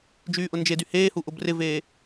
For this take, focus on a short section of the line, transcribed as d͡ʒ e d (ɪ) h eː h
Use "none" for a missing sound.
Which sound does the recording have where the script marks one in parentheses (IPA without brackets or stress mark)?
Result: y